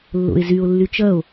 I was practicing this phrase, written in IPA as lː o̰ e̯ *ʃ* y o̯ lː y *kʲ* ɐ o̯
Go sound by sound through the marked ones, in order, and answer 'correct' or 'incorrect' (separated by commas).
incorrect, incorrect